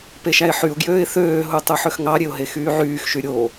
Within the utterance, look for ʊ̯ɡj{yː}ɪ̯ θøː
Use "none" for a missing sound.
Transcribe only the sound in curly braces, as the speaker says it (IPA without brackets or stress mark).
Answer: øː